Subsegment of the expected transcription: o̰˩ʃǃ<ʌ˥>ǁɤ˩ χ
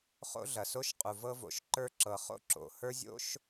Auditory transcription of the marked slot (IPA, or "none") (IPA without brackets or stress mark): ə˞˥